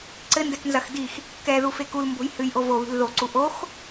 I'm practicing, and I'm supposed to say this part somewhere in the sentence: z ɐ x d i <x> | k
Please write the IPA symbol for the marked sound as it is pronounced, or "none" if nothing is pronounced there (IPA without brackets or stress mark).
x